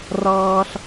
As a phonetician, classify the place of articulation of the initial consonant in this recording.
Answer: alveolar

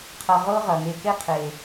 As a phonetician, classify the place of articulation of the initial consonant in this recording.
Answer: uvular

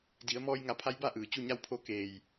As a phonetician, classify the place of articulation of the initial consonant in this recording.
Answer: alveolar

